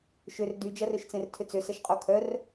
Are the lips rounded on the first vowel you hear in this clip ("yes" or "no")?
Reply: yes